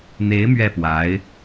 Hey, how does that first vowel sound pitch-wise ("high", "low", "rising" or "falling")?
rising